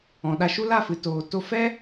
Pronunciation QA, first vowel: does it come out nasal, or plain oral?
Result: nasal